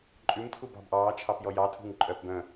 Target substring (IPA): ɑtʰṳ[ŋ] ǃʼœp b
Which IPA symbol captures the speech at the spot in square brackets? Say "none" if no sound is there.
ŋ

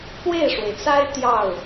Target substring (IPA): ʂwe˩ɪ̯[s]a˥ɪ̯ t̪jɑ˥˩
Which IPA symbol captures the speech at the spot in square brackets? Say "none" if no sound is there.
t͡s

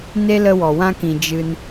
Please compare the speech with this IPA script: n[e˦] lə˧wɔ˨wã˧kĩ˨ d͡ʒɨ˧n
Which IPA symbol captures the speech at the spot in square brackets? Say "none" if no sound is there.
e˦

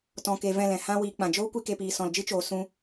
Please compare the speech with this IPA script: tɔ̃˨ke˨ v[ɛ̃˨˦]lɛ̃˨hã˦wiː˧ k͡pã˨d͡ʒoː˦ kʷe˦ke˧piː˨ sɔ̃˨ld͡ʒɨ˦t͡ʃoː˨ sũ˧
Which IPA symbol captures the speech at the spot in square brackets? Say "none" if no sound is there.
ɛ̃˦˨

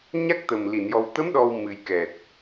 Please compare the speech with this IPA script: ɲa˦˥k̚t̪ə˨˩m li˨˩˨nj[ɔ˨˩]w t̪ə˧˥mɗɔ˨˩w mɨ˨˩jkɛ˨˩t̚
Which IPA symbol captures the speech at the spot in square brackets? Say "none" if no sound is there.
ɔ˨˩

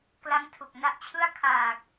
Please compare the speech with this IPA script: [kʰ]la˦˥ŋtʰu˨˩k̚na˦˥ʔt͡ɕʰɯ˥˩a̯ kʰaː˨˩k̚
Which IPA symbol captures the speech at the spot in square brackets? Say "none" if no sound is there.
k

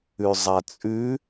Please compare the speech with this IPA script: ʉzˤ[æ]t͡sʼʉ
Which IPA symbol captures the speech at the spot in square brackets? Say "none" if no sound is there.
a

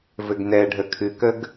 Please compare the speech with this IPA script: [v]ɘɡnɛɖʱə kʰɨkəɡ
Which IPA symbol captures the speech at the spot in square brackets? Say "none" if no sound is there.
v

